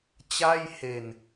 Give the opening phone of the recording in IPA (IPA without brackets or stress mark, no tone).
t͡ɕ